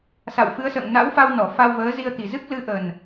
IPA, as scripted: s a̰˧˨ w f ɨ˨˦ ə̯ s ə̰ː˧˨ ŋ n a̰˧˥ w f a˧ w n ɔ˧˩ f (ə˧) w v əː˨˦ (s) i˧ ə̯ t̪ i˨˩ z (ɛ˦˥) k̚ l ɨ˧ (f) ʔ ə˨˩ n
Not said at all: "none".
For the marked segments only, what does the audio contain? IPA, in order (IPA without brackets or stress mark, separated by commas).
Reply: a˧, z, ɨ˦˥, none